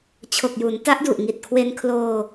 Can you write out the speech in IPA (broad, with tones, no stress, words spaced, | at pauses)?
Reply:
t͡ɕʰo˨˩k̚ju˩˦nta˦˥ʔ du˨˩ʔŋi˨˩t̚kʰwe˧nkʰloː˧